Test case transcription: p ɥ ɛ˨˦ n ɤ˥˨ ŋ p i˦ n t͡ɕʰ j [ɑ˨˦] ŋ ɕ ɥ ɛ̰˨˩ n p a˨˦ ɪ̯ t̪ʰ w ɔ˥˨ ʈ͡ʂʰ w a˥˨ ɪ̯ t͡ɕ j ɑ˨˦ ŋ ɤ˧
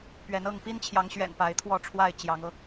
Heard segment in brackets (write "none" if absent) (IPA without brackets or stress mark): ɑ˨˦